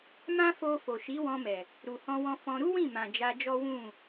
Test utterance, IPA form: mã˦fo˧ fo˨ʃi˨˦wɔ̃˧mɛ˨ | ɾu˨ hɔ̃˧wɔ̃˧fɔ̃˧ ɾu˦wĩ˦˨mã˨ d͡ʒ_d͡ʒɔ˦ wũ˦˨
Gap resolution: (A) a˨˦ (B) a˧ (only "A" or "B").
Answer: B